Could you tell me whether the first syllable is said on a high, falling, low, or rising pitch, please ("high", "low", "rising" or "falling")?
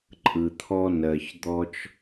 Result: low